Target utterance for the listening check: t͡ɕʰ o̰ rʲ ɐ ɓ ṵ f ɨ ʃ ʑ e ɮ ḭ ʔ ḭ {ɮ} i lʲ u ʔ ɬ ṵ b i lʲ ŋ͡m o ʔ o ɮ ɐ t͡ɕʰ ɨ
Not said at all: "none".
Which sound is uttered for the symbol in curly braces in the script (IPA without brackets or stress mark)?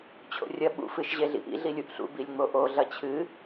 ɮ